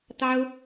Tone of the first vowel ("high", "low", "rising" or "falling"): high